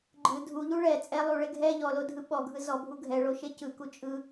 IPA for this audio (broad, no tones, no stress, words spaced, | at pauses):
ɡ͡ǃɯ dʱuʎu ɭɛ t͡sʼɛ lˠuɭe ɡʱɛ ʎɔlodʱɯ ɓɔɡʱɯ zɔbʱu ɡʱɛɭoʃe cɯku t͡ʃʼɯ